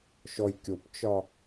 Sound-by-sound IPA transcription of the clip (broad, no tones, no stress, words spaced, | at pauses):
ʃɔjkʲopt͡ʃɒ